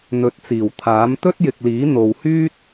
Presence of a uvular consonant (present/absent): absent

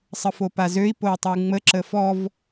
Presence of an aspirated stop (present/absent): absent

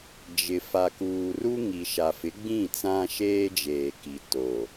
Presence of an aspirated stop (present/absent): absent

